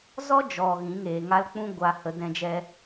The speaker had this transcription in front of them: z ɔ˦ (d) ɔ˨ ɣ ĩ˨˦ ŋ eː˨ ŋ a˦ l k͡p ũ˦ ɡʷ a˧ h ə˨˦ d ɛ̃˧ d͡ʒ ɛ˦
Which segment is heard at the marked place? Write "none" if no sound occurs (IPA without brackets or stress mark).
d͡ʒ